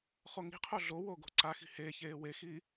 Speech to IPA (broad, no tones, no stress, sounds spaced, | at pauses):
χ o ŋ i̤ qʰ o ɮ o w o ɡ o̤ ǀ a x i̤ h e ç eː w e x i